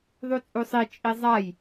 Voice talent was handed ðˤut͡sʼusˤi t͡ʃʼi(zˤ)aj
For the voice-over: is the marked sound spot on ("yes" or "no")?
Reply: yes